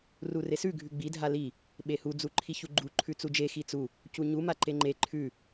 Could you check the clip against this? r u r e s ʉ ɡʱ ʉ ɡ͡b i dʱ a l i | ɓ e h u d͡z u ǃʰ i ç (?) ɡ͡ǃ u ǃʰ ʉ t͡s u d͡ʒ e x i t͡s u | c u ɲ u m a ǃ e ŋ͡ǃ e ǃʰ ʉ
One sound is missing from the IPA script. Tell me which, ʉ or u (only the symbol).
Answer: u